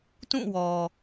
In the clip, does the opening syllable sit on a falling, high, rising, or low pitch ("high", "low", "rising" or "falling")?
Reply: falling